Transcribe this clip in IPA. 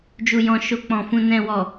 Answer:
d͡ʒ u˨ j ɔ̃˨ ʃ o˧ k͡p ɔ̃˨ f ũ˨ n ɛ̃˨ w ɔ˨

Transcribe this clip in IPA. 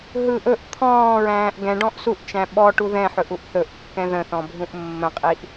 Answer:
ɦ ɯ ʔ ɵ ʔ t̪ʰ ɔ̃ː ɹ æ̃ː ʔ ɡ ɛ̃ ɖ ɔ̃ ʔ s u ʔ t͡ʃ æ̃ ɓ ɔ ʈ u ð ɛ̃ ħ ɵ ʔ u ʔ θ ɵ ʔ kː ɛ̃ ð ə̃ θ ɔ̃ bʱ ũ ʔ mː ə̃ qʼ i ʔ

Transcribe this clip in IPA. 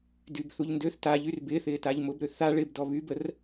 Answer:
d y b θ u ʎ n d ø θ t a ʎ y r b ɪː θ ɪː t a ʎ m ʊ b ɾ ø θ a ɭ ɪ b d ɔ β y b ə r

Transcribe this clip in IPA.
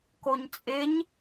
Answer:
k o ɲ t͡sʼ ɪ ɲ

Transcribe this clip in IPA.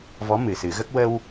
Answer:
v ɔ˧˥ m ɨ˨˩ s ɨ˨˩˦ ɣ ə˦˥ k̚ w ə˧ w

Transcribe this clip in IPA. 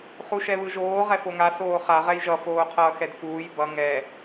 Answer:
χ u ʃ ɛ β ɯ ʒ oː ʁ ɛ f o ŋ a s oː χ a ʁ ɛ j ʒ ʌ f oː qʰ ʌː x ɛ d f uː j b ʌ ŋ ɛ

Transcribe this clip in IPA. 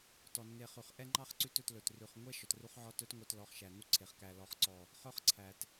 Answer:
t ɔ˨ nː e˧ χ ʉ˨ χ ʔ ɛ˦ ŋ͡ǃ ɑ˦ χ ǀ ʉ˦ t ɵ˧ t l ɵ˨ t r ʉ˨ χ ŋʷ ɛ˦ ʃ ɔ˧ t r u˦ χ ʕ ɔ˦ t œ˦ t ŋʷ œ˧ t l ɔ˧ χ ʃ æ˨ n u˦ ǀʰ e˨ χ k æ˨ l ɔ˨ χ ǀ ɔ˨ | χ œ˦ χ ǀʰ æ˨ t

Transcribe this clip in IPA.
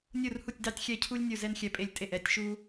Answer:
nʲ u˧˩ r h u˧˩ tʲ d ɑ˧ tʲ xʲ ɛ˧˩ cʰ u˧ lʲ nʲ u˧˩ z ɛ˧ n xʲ ɛ˧˩ pʼ e˧˩ lʲ tʼ e˧˩ ʔ ɛ˧˩ tʲ ʃ u˧

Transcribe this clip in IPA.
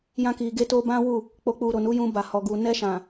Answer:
j ã˦ k i˧ ɡ e˦ t o˦ b ã˦ w u˦˨ | k͡p o˨ k͡p u˨ ɾ o˨ n u˨˦ j ũ˧ b a˨ h ɔ˨ ɡ u˨ n ɛ˧ ʃ ã˨

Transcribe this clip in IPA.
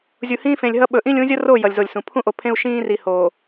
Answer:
zʲ u˨ h ĩː˦ f ẽ˨ lʲ ɦ ʌ˦ ɓ ɵ˨ ʔ ĩ˦ lʲ ũ˨˦ zʲ ʌ˦ r o˦˨ j ʌ˨ lʲ z o˨ lʲ s ũ˨ pʰ ũ˦ ʔ o˨ pʰ ẽ˦ u̯ ʃ ĩː˦ r i˨ h o˨

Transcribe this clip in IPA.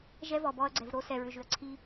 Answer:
ʒ ɛ˦ v ɔ˨ b ɔ˧ ɐ̯ ɡ͡ǀ ɛ˨ v ɾ o˧ s ɛ˨ ɹ ʏ˨ ʒ ʏ˨ ɐ̯ ǀʰ i˧

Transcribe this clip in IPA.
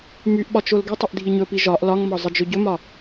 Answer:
m y ʔ ɓ ɒ t͡ʃ o l ɡ ɪ tˤ ɪ ʔ dʱ i ɲ ɵ p i ʒ ɒ ʔ l ɒ ŋ m ɒ zˤ ɪ d͡ʒ ɵ ɟ ɵ m ɒ

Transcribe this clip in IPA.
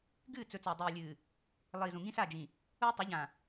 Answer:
ɡ ɨː˦˨ t͡s ɵ˨ t͡s ɵː˨ dˤ iː˨ lʲ ɨː˨ | lˠ iː˨ z ũ˨ ŋ ĩ˦ s a˦˨ d͡ʒ ĩ˨ | u˦ tˤ u˨˦ ʎ ã˨

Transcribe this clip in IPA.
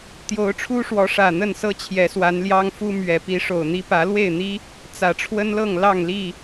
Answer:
t̪ j o˨˦ ʊ̯ ʈ͡ʂʰ u˦ ʂ w ɔ˨˦ ʂ ä˨˩ n̪ ə˥˨ n s ɤ˦ t͡ɕʰ j ɛ˨˦ s w a˨˦ n l j ɑ˦ ŋ f u˦ m ɥ ɛ˨˦ p i˨˦ ʂ o˨˩ ʊ̯ n̪ i˦ p ä˨˦ l w e˥˨ ɪ̯ n̪ i˦ | t͡s ä˨˩ ʈ͡ʂʰ w ə˦ n l ɤ˥˨ ŋ l ɑ˥˨ ŋ l i˥˨

